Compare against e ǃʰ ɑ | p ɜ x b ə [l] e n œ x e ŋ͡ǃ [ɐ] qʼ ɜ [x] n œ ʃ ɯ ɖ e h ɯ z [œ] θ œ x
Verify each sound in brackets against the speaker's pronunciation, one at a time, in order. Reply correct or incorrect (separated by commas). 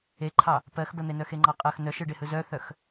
incorrect, incorrect, correct, correct